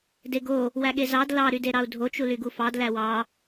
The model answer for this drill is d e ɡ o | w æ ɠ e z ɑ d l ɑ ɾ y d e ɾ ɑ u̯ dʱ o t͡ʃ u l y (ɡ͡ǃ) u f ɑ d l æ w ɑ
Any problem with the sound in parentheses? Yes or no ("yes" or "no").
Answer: yes